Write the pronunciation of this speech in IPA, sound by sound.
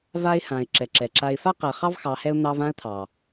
v a˦ ɪ̯ h ã˨ ɪ̯ ǁ ɛ˨ ǁ ɛ˨ ǁ a˦ ɪ̯ f a˦ q ɛ˨ χ ɑ˦ v x ɑ˨˦ h ɛ˦ ʊ̯ n̪ ɑ˦ v ã˦ ə̯ t̪ʰ ɑ˨

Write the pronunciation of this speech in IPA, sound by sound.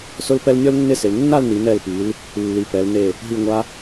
s ʊ˥ l p ɛ˥ l nʲ ɔ˥ l nː ɪ˥˧ s ɪ˩˧ l nː a˥˧ l n i˩˧ n ɛ˧˩ l p i˩˧ l | lː i˩˧ p ɛ˩˧ l n e˧˩ | ɦ i˧˩ ŋʷ a˧

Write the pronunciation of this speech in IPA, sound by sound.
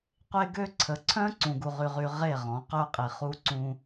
qʷ e˦ ɡ ø˦ ǀʰ ə˨ ǀʰ œ̃˦ ǀ ũ˨ ɡ u˨ ʁ y˨ ʁ y˨ ʁ e˦˨ ʁ ɔ̃˨˦ q œ˦ qʼ i˨ χ u˦ ǀ ũ˦

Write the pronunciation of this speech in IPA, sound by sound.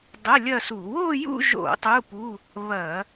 dˤ ə˧˥˧ lʲ ɐ˥˧ s u˧˩˧ w o˥˧ j ṵ˥˧ ʒ o̰˧˩˧ tˤ u˧˥˧ p u˧˥˧ | β ɐ˧˩˧

